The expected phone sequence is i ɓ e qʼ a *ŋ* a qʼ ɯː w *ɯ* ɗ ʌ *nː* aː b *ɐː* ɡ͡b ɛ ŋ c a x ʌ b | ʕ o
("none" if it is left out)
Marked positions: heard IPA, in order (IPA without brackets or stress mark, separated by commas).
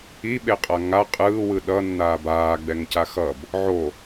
ŋ, ɯ, nː, aː